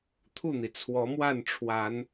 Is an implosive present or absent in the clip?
absent